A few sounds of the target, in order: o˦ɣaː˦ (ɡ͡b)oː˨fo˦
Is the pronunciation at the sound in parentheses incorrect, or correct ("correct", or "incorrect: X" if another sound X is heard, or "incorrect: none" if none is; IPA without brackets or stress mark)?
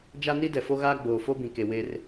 correct